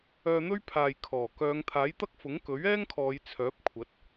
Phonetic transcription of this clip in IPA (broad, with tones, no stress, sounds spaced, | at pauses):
œː˧ n̪ ɵ˥ ɥ pʰ aː˨ j kʰ ɔː˨˩ k œː˨˧ ŋ t̪ʰ aː˨˥ j t̪ ɐ˥ k̚ f ʊ˨˥ ŋ k ɵ˨˥ ɥ ɛː˥ ŋ kʰ ɔː˨˧ j t͡sʰ œː˨˥ p̚ kʷʰ ɐ˨˥ t̚